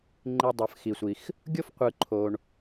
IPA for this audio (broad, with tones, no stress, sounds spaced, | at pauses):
ŋ͡ǃ i˨ dˤ ɯ˩ f x i˩ sʷ i˩ x | ɡʲ o˥ f qʷ ɯ˨ ǃʰ o˨ ɳ